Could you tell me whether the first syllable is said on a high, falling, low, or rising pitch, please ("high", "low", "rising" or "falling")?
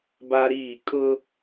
high